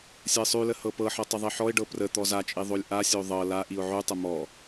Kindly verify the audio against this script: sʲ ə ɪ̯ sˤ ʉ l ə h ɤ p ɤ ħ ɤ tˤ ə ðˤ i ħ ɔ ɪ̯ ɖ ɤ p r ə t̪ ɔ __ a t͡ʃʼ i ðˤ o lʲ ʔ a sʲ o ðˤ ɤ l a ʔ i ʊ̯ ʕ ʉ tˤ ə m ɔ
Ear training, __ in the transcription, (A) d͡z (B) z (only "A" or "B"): B